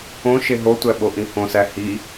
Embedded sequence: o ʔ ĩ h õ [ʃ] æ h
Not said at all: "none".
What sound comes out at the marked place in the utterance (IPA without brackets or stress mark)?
s